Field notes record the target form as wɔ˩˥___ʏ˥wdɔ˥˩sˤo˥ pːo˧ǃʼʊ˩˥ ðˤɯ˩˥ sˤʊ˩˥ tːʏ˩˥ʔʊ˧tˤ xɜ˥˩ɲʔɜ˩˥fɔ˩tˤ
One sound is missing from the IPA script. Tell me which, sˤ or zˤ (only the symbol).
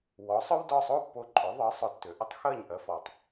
sˤ